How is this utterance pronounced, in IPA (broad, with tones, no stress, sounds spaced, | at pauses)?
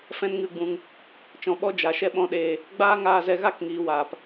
f ɛ̃˦ n ŋ ɨ˦˨ ɡ͡b ũ˧ ŋ | t͡ʃ ɔ̃˧ ɓ ɔ˦ d͡ʒ a˨ ʃ ɛ˧ ɓ ɔ̃˧ ɗ eː˧ | ɡ͡b aː˦ ŋ aː˧ z ɛ˧ ɣ a˦ k ŋ iː˨ w aː˨ p